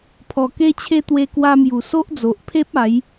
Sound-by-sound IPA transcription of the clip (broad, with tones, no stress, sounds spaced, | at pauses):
pʰ ɔ˨˩ k e˧ t͡ɕʰ e˧ t̪ w e˧ k w a˧ m j u˨˩ s o˦ ʔ d͡z o˨ ʔ pʰ e˦ p̚ a˨˦ j